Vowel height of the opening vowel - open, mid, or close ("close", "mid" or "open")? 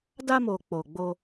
open